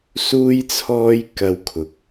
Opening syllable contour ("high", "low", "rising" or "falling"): high